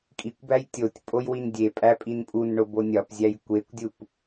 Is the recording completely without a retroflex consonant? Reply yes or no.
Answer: no